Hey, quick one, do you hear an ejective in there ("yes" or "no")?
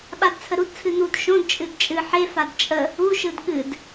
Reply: yes